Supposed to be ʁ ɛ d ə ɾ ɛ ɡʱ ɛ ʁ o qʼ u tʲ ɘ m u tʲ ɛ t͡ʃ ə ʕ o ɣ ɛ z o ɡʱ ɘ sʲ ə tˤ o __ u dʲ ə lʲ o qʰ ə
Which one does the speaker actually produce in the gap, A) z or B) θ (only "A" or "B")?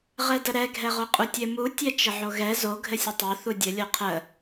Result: B